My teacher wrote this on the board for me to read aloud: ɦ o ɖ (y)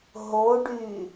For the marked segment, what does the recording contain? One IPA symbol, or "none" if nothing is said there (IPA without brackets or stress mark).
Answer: y